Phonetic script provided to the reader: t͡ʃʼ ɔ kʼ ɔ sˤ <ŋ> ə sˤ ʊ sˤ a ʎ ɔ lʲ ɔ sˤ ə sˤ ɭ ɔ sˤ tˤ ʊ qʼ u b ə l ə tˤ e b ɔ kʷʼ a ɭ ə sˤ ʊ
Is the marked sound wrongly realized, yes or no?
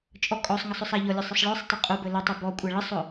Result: no